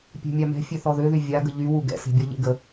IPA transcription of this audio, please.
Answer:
pʲ ɛ̤ mʲ a m ɛ̤ fʲ ø θ ɔ ð ø ð y vʲ a ɡ ə ʎ y w u ɡ ɛ̰ s e̤ bʲ ɔ ʎ ḛ ɡ ə

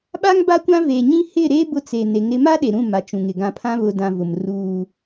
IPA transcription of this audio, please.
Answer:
ɓ a˦ ŋ b a˦ kʷ ã˦ v e˨ ɲ ĩ˦ h ɪ˦˨ ɾ e˦ b ʊ˦ t͡s e˨ n e˨˦ ŋ ɾ ɪ˦ m a˦ ɗ e˨ ɾ ũ˦˨ m a˨ t͡ʃ ũ˨ ŋ ɪ˨ ɡ ã˨ pʰ ã˦ β ʊ˨ d ã˨ v ʊ˨ m r uː˦

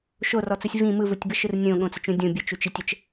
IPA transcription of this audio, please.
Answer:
ʃ o r ɔ t͡s ɯ sʲ v ĩ m ɯ v u tʲ b ə ʃ ɯ r nʲ õ ɠ õ t͡s ə t͡ʃ ũ dʲ õ bʲ ə t͡ʃ u t͡ʃ i tʲ ə t͡ʃ

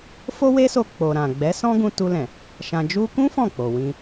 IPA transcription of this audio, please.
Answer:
f o˦ w e˦ s o˧ k͡p o˨ ɾ ã˨ ɡ͡b ɛ˨˦ s ɔ̃˦ ɡ ũ˧ t u˧ l ɛ̃˨ | ʃ ã˨ d͡ʒ u˧ k ũ˦ f ɔ̃˦˨ k͡p o˨ w ĩ˧

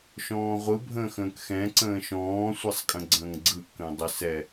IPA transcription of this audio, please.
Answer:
ʃ ɔ̃ː ʁʷ ɯ bʱ ə̃ː x ə̃ː k x ɛ̃ ǀ ə̃ː ʃ ɔ̃ː sʷ ɛ sˤ kʼ ə̃ ɡ͡ǀ ə̃ː ŋ ɡ͡ǀ ɯ ʔ k ə̃ː dˤ ə s ɛ

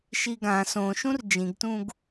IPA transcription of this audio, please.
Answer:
ʃ i ɡ ã s õ ʃ ũ r d͡ʒ ĩ ɡ t ũ ɡ

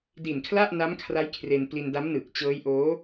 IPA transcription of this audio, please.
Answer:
d i˨˩ n kʰ l a˥˩ ʔ n a˦˥ m kʰ r a˦˥ j kʰ r e˧ n p l i˧ n d a˦˥ m n ɯː˨˩ k̚ t͡ɕ ɤː˦˥ j ʔ oː˦˥

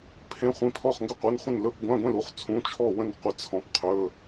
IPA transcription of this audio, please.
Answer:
pʰ ẽ˧˥˧ χʷ ĩ˧˥ pʰ ɔ˥˨ χ ŋ ɡ ɵ˥˨ qʷ e˧˥˧ n χʷ ə̃˥˨ n l ɵ˧˥˧ p ɡʷ ã˧˥˧ ɡʷ ẽ˥˨ l u˧˥˧ χ t͡sʰ ũ˧˥˧ t͡ʃʰ ɔ˥˨ w ə̃˥˨ n qʷ ə˧˥ t͡sʰ ɔ̃˧˥ p qʰ ɵ˧˥˧

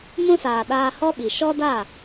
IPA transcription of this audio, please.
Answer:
m ũ˧ s aː˨ ɗ aː˧ h ɔ˦ ɓ i˨ ʃ ɔ˦ d a˦˨

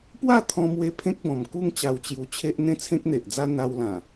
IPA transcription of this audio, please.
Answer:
p w a˥˧ t̪ʰ ɔ̃˧ m w e˧ pʰ ẽ˦ k̚ b ɔ̃˨˩ m k u˥˧ ŋ t͡ɕ a˧ w t͡ɕ j u˧ t͡ɕʰ e˦ ʔ n̪ ẽ˥˧ t͡sʰ ẽ˦ k̚ n̪ e˨ ʔ d͡z a˦ n̪ a˧ w l ã˨˩

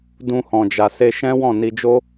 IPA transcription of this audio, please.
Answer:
d ũ˧ h ɔ̃˨ d͡ʒ a˨ s e˧ ʃ ɛ̃˦ w ɔ̃˦˨ n i˧ d͡ʒ o˦

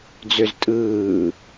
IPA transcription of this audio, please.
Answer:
d͡z ø z tʼ ɯː

